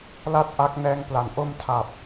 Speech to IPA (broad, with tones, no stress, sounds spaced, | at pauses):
l a˥˩ t̚ ʔ a˦˥ k̚ n ɛː˦˥ ŋ p l a˨˩ n ʔ o˧ m tʰ a˨˩ p̚